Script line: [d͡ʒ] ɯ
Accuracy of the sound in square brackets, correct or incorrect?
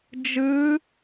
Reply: correct